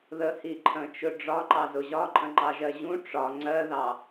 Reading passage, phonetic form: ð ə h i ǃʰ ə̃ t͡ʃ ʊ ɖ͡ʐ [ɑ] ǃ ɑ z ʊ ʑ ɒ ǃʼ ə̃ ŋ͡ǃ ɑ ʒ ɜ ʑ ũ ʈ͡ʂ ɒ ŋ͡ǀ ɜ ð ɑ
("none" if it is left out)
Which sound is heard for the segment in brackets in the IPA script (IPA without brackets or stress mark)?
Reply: ɒ